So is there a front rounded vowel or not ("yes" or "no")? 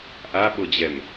no